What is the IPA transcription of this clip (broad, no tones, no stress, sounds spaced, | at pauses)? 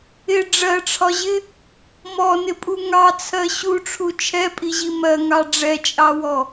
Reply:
ɪ ɖ͡ʐ ɜ ʈ͡ʂʰ ɒ ʑ ɪ | m ɔ n ɪ pʼ u ŋ ɑ t͡sʰ ɜ ɕ u ʈ͡ʂʰ u t͡ʃʰ ɛ pʼ i ʑ i m ɜ ŋ ɑ ɖ͡ʐ ɛ t͡ʃʼ ɑ w ɔ